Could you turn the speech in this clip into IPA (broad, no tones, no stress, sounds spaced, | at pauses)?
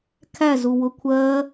kʰ æ z u w ʊ kʷʰ ɜ